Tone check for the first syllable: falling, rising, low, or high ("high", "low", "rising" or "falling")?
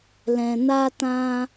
low